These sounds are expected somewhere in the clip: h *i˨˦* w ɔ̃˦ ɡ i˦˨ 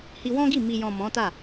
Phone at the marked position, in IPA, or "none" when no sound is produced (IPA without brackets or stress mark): i˧